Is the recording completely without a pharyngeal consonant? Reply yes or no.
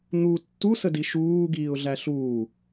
yes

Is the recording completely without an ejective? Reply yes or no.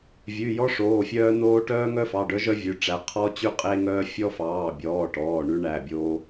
no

